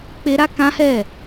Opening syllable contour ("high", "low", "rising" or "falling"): high